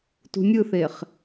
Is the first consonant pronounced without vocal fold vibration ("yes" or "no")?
yes